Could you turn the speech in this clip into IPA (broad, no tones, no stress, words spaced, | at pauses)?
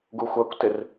ɡuxʷɜkʷtɪr